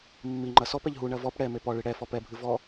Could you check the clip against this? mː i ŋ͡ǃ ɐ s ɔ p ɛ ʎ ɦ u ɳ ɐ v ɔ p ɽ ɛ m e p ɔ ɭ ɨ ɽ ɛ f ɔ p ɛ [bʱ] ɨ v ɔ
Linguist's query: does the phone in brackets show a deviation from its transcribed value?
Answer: no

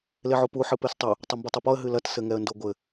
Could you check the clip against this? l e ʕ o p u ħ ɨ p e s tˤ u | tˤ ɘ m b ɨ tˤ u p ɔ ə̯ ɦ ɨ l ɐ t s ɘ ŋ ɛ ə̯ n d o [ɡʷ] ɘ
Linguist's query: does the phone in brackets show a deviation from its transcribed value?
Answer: no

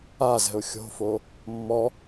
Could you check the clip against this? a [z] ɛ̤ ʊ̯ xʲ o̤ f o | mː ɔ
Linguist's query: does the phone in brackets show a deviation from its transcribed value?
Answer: no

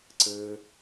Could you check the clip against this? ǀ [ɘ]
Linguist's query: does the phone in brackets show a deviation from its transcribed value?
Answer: no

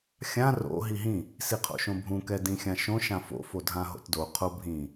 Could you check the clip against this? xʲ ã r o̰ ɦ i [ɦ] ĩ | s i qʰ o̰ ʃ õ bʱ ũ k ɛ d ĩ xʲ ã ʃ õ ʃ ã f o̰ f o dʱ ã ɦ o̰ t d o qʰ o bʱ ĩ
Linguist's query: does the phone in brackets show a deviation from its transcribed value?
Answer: no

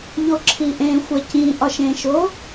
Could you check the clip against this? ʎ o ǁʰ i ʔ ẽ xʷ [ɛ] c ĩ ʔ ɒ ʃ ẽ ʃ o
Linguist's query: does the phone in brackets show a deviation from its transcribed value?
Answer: yes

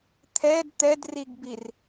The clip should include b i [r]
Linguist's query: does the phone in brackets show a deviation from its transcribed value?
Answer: no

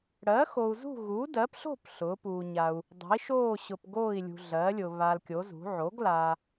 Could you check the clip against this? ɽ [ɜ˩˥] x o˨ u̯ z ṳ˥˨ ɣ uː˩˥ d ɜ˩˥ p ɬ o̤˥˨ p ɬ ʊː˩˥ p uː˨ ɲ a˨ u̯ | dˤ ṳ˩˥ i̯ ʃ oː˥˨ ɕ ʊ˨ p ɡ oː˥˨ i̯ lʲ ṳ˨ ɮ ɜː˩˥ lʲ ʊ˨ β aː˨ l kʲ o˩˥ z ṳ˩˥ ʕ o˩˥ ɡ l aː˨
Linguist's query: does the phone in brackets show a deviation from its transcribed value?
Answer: no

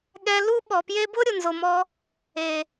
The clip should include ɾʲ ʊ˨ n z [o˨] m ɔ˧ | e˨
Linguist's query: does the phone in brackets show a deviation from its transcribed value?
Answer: no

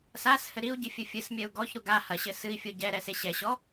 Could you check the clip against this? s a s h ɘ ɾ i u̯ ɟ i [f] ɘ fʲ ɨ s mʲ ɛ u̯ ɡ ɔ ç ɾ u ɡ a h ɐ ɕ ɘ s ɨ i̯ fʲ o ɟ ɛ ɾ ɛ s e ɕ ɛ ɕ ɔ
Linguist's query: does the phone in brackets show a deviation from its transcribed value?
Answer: yes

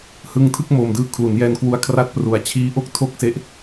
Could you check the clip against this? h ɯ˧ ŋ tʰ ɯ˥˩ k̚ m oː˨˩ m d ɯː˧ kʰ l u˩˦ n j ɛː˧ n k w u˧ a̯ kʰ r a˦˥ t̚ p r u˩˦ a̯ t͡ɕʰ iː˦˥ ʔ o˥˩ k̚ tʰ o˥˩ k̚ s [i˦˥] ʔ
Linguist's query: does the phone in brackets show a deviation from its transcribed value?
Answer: yes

